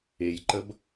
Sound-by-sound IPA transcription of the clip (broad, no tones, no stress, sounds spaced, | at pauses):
e j ǃ ə b